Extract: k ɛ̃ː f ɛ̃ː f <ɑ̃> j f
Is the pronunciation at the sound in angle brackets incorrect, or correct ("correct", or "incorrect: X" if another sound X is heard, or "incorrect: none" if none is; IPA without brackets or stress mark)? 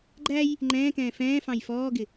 correct